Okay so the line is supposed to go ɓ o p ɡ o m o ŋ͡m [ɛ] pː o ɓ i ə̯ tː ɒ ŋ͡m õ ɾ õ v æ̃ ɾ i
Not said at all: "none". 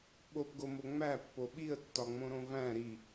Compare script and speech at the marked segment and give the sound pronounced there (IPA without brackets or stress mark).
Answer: æ